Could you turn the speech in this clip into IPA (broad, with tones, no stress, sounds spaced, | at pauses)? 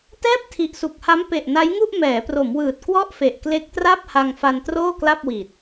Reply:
t ɛː˥˩ p̚ tʰ i˨˩ ʔ s u˨˩ k̚ h a˦˥ m p e˨˩ ʔ n a˦˥ j ŋ u˥˩ ʔ m ɛː˩˦ p r o˩˦ m w ɯː˨˩ t̚ k w ɔ˥˩ ʔ f e˨˩ ʔ k l e˦˥ k̚ t r a˥˩ p̚ h a˧ ŋ f a˧ n t r oː˥˩ k l a˥˩ p̚ w iː˨˩ t̚